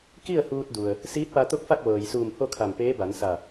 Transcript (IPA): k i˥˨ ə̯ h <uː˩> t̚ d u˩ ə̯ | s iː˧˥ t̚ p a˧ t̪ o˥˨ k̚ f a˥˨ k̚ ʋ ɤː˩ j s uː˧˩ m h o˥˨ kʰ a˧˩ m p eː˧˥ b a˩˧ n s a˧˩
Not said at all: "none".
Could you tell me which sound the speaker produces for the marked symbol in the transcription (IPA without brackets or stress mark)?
uː˧